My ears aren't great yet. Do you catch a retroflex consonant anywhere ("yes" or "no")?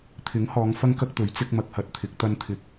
no